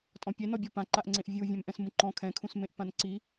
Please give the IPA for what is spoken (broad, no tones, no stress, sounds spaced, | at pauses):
tʼ ɔ̃ pʲ ɛ n ɔ bʲ ɔ p ã ǃ a ʔ ŋ͡ǀ ẽ ʔ vʲ u vʲ ɛ̃ m ʔ ɛ̃ s m ũ ǃ ɔ̃ kʰ ɛ̃ kʰ ũ s m ẽ ʔ p ã n ǀ i